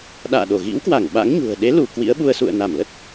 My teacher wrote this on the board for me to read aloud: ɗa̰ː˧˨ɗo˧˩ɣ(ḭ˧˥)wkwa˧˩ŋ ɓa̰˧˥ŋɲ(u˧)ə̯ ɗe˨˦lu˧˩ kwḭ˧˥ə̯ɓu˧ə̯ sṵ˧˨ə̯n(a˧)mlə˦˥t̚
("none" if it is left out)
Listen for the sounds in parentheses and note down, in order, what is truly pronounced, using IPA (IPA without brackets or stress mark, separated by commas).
ḭ˧˥, ṳ˨˩, a˧˩